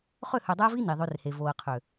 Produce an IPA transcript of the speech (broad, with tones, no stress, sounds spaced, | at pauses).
χ ø˦˨ h ø˨ dˤ æ˦ v i˦ n i˨ ðˤ ø˦ r h e˨ v o˨ ə̯ qʰ ø˨